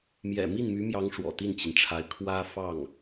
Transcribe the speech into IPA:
m j ɛ̰˨˩ m i˥˩ n m y˧˥ m j ɑ˧˥ ŋ ʂ w ɔ̰˨˩ t̪ i˥˩ n t͡ɕ i˩ n ʈ͡ʂʰ a˧˥ ɪ̯ kʰ w ä˥ f ɑ˥˩ ŋ

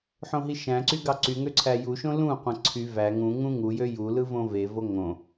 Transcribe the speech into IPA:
ħ õ ɦ i ʃ æ̃ ǀ y ɡ ɑ ǀ y ŋ ø ǀʰ æ j u ʃ õ l ũ qʷ æ̃ ǀʰ y v æ ŋ ũ ŋ ũ ŋ u j ø j u l ɯ v õ v e v o ŋ õ

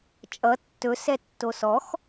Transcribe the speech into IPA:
t͡ʃʼ ʌ tː ɵ s ɛ tː o s ɔ x

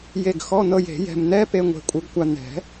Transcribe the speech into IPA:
j e˧˩ ɡ x ɔ˧˥˧ n̪ ɤ˧ j e̤˨˩˦ j ɛ̤˧ m n̪ ɛ˧˥˧ p e˧ ŋʷ e̤˧˩ kʷʼ ɯ˧ ɡ kʷ a˧ n̪ ɛ̤˨˩˦

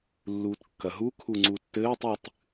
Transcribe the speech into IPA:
lː uː t kː ɐ ɦ u kʰ u ŋ͡ǀ u tː ɘː tˤ ɨ tˤ

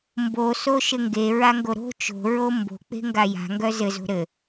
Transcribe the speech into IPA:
m b o s o ʃ ɘ ŋ ɡ e ɹ a ŋ ɡ o ɾ o̤ t͡ʃ o̤ ɹ o m b o̤ k͡p e̤ ŋ ɡ a j a̤ ŋ ɡ œ z ɘ z o̤ ɾ ɘ

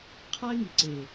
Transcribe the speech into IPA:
qʰ a˦ ɪ̯ ŋ i˨ ǀ e˨

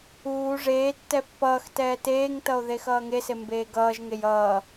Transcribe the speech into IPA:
uː ʐ eː tː ɛ pː ʌː x t ɛː t eː ŋ t ʌ o̯ ð e x ʌː ŋ e s e m b eː ɡ ʌː ʒ ŋ e j ʌː

